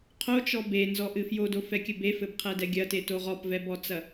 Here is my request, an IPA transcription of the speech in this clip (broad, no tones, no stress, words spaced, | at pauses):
qʰot͡ʃɔ benzɔʔɨ fjodofɛkʲɘ befɘbqʰɛdɛ ɡʲɐtetoʁ ɔpvɛbɔt͡sɐ